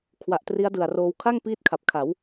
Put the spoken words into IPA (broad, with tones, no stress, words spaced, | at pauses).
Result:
kʰwa˨˩ʔtri˦˥a̯dɯ˨˩a̯roː˧w kʰa˥˩ŋ piː˥˩t̚kʰa˨˩p̚ kʰa˩˦w